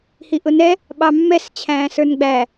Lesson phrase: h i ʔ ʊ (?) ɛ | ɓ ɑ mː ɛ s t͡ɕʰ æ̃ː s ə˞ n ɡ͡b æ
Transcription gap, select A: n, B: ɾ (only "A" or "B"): A